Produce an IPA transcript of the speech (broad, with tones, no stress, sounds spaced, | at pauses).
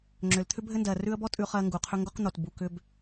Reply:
ŋ͡ǁ ʏ˩ l t̪ʰ ʏ˥ bʱ ɘ˥ n d ɜ˩ r ʉ˦ ə̯ b ɔ˥ tʼ ʉ˦ χ ɜ˦ ŋ ɡ u˩ qʰ ʏ˥ ŋ ɡ o˥ q n̪ o˩ t b u˨ k ʏ˦ b